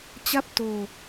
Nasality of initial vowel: oral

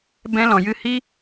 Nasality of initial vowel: nasal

